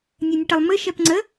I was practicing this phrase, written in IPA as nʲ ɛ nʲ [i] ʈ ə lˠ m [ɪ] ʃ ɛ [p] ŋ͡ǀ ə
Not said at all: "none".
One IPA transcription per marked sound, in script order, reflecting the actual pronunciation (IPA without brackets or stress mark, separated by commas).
ɨ, ɨ, p